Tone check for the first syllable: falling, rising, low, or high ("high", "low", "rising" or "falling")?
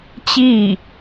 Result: falling